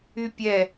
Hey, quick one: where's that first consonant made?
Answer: lips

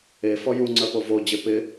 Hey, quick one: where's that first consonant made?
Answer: lips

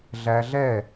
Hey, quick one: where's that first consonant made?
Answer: tongue tip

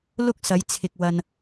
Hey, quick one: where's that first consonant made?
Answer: tongue tip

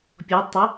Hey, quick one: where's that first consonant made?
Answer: lips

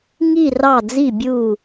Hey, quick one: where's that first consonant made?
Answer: velum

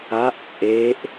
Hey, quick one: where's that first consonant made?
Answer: throat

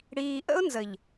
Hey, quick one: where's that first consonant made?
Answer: retroflex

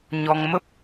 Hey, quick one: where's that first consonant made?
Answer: palate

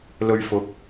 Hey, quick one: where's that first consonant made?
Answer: tongue tip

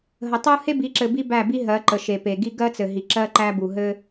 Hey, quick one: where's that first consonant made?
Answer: throat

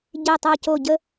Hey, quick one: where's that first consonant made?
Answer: palate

